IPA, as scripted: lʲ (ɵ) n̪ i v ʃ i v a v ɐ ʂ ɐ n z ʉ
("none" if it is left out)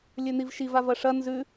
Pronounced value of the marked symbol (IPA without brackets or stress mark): ɵ